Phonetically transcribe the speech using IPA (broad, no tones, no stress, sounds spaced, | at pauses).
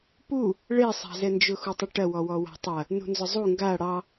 p u | ɭ e sˤ a̤ z ɛ n d͡ʒ ʊ x u tˤ ʊ ʈ ɐ w ɔ w ɔ w a̤ tˤ ɐ | n ṳ n z ʊ zˤ u ŋ ɡ a ɽ ɑ